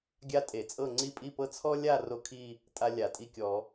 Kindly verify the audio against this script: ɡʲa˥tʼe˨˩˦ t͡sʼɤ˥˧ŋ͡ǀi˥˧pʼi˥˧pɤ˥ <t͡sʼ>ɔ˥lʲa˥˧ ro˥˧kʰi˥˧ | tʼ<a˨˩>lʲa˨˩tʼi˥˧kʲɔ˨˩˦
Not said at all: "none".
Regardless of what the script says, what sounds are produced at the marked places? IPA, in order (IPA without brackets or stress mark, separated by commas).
t͡sʰ, a˥